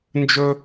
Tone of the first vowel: high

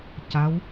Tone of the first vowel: rising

